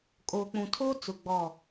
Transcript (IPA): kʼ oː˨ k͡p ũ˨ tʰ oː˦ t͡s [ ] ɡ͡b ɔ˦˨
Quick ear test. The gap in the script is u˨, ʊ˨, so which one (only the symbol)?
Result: ʊ˨